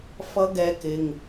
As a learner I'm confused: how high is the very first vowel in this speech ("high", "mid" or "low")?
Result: mid